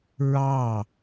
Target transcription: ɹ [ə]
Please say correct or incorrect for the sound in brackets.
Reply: incorrect